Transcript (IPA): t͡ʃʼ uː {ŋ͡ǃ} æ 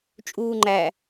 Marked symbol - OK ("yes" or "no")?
yes